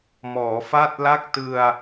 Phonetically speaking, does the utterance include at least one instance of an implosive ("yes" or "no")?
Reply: no